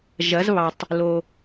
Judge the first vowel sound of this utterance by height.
low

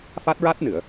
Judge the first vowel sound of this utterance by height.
low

